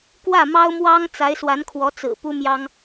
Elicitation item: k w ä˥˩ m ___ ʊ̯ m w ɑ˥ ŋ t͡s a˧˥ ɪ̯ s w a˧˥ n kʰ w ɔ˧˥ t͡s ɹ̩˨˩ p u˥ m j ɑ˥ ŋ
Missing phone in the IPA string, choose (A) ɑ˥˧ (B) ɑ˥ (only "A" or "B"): B